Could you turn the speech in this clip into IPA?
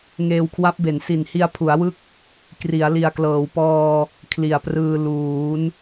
ŋ eː˧ w kʰ w a˦˥ p̚ b e˩˦ n s i˨˩ n h i˧ a̯ pʰ u˩˦ a̯ w ɯ˦˥ k̚ | k r i˩˦ a̯ l i˨˩ a̯ k l ɤː˩˦ w p ɔː˧ | kʰ l i˨˩ a̯ p r ɯː˧ l uː˩˦ n

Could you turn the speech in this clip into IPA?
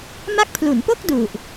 m a˦˥ k̚ pʰ l u˩˦ n p o˥˩ k̚ d u˨˩ ʔ

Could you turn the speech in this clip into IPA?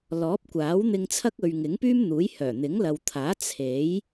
l ɔː˨˥ p̚ kʷ aː˨˥ w n̪ ɪ˧ ŋ t͡sʰ ɐ˥ k̚ ɵ˨ ɥ ŋ ɪ˨˥ ŋ p yː˥ m n̪ uː˨˥ j h œː˨˩ n̪ ɪ˨˥ ŋ l ɐ˨ w t̪ʰ aː˨˥ t͡sʰ e˨˥ j

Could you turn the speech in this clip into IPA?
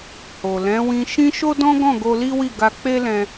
h o˨ l ɛ̃˨˦ w ĩ˧ ʃ ĩ˦ ʃ o˦ d ɔ̃˦ ɡ ɔ̃˦˨ ɡ o˧ l i˦ w i˦˨ ɡ a˧ k͡p e˦ l ɛ̃˧

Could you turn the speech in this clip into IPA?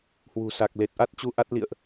h w ṳ˨˩ s a˨˩ k̚ l e˨˩ t̚ ʔ a˦˥ t̚ t͡ɕ u˧ ʔ a˦˥ t̚ l ḭ˧˨ ə̯ ʔ

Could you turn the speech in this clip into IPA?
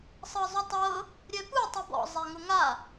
sˤ ɤ zˤ u tˤ ɤ | ɾʲ ɛ p u tˤ u b ɔ̰ zˤ ɛ ŋ ʊ ŋ a

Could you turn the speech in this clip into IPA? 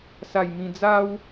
s a˧ j m ĩ˧ d͡z a˦ w

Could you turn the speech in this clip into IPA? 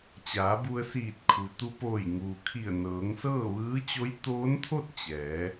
t͡ɕ aː˩˧ b u˧ ə̯ s iː˧˩ t̚ kʰ u˩ t̪ u˧ p oː˧˩ j ŋ uː˩ kʰ i˧˩ ə̯ n ɤː˩˧ ŋ s ɤː˥˨ ʋ ɯː˧˥ t͡ɕ o˧˥ j t̪ oː˧˥ n t̪ʰ o˥˨ t̚ t͡ɕ ɛː˩˧

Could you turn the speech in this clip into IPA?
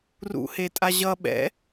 r ṵ h e tʼ a ʑ ʌ ɓ ɛ̰

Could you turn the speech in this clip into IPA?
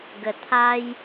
ɡ ə˨˩ t̪ʰ a˧ j

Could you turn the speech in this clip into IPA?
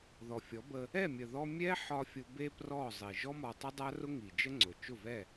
ð ɔ˨ fʲ ɔ˨˦ b ə˧ | ɛ˦˨ mʲ ə˨ ð ɔ˧ mʲ ɛ˦ ħ ɒ˧ fʲ ʊ˧ b e˦ p r ɔ˦˨ zˤ i˨ ʒ ɔ˦ m ɒ˧ tˤ ə˦ dˤ a˦ r ʊ˦ ŋ i˨ d͡ʒ ə˦ ŋ͡ǀ ʊ˨ t͡ʃ ʊ˦˨ v ɛ˦˨

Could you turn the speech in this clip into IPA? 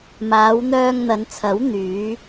m aː˨˧ w n̪ œː˧ ŋ n̪ ɐ˨˧ n t͡sʰ ɐ˨˥ w n̪ yː˨˧

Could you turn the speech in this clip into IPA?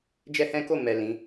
d͡ʒ ɛ˦ h ɛ̃˦ k o˦˨ m ɛ˨ l ĩ˨˦

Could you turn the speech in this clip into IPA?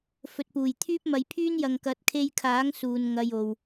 f ɵ˨ t̚ p uː˨˩ j t̪ʰ yː˥ p̚ m ɐ˧ j pʰ yː˥ n j ɐ˨ ŋ k ɐ˨˥ t̚ kʰ e˧ j kʰ aː˨˥ ŋ s uː˨ n ŋ ɐ˧ j o˨ w

